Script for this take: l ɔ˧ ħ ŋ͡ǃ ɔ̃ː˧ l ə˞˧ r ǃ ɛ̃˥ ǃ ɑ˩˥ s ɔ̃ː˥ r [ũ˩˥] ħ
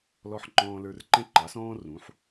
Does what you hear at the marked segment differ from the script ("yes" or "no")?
no